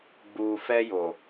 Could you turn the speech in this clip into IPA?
ɡ͡bu˨fɛ˧jo˨

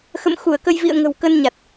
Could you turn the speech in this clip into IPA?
xə̰˧˨m xu˧˩ə̯kə˧jvḭ˧˨ə̯ ŋə̤˨˩wkə˧nɲa˨˩t̚

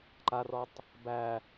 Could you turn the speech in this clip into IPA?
ǃarɔtˤ | bæ

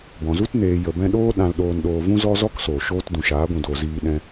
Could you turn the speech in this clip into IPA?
bɔ̃˨zu˦t neː˨jə˨bɛ̃˧ ɗoː˦ɗã˧l ɗoː˧nɗoː˧vũ˦ zɔ˦zɔ˦ksoː˨ ʃoː˦t dũ˨ʃaː˨˦ɡʷũ˨doː˨ ziː˧ɗɛ̃˧

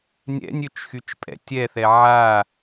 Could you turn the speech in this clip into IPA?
nʲɛ̰nʲøt͡ʃxyt͡ʃpʼɛ̰ tʲɛθɛ ʕa

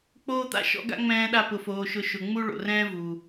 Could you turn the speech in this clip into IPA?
k͡poː˦t̪a̰˦ ʃɔ̰˦ɡa̰˦ŋ͡mɛ̃ː˧ɗa˧ pʊ˨foː˨ʃʊ˨˦ ʃʊ˨ŋ͡mu˦ ɭo̰˨rɛ̃ː˦ vu˨

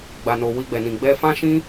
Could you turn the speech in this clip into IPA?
ɡ͡ba˨no˨ wi˧ɡ͡bɛ˨nĩ˨ ɡ͡bɛ˧fã˦ʃĩ˦

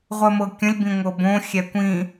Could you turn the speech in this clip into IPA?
ʁʷɜmɤkʲə̃lʲ bĩŋʷɤbõ xʲɛkʷĩ

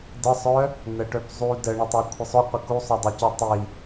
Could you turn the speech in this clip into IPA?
dəsˤœ | n̪əʈœpzˤu də ɳotˤokʷʰəsˤo qʷəku sˤœdˤəco tˤi

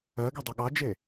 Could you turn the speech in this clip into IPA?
ɜɡedˤɐ ɠɑd͡ʒe

